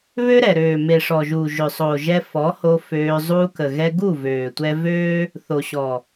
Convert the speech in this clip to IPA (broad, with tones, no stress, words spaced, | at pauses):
βø˦ɾɛ˨ɾøː˨ me˨ʂɔ˨ʒuː˨ ʒø˨sˤoː˨ʒɛ˧ fɔ˨˦ho˧ føː˧ zˤuː˧kə˨ɣɛ˧ ɡu˦˨vøː˨tʷɛ˧ vøː˦ | θo˨ɕɔ˨